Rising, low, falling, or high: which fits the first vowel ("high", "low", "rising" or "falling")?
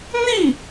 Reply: falling